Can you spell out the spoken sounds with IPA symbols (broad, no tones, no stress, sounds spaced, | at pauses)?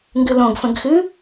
ŋ ɡ ɨ l õ ɡ f ə̃ ɡ x ɨ